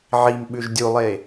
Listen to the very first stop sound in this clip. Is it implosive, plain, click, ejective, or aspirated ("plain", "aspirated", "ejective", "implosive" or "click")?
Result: implosive